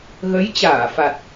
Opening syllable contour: rising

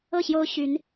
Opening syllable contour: falling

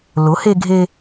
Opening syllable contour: rising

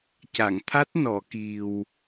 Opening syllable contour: low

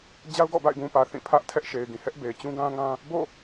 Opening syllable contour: high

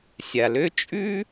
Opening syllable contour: low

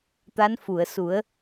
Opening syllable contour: rising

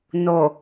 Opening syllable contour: low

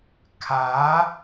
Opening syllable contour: rising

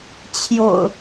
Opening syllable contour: low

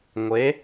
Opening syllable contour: rising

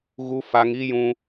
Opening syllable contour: high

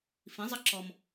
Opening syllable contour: rising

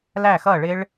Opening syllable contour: falling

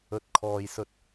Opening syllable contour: rising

